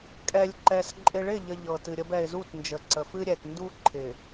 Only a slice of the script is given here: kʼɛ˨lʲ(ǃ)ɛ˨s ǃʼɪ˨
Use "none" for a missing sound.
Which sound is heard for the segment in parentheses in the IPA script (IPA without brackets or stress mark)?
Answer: ǃ